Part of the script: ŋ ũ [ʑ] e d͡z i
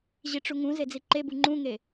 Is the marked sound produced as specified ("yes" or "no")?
no